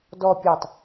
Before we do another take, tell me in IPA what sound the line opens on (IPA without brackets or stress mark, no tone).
d